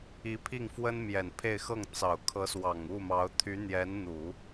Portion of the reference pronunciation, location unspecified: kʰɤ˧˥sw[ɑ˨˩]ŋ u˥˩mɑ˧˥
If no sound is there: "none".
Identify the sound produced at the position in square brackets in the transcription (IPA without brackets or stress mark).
ɑ˨˩